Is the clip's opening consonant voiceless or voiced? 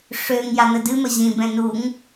voiceless